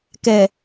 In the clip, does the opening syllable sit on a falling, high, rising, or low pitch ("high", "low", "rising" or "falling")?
low